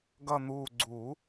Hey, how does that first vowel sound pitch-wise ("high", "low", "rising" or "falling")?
low